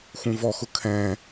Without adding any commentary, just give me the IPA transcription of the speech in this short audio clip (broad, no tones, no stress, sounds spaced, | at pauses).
x ũ v ɔ x ʊ kʰ ɛ̃